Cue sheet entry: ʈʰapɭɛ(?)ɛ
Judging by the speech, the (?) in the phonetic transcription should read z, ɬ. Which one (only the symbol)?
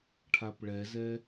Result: z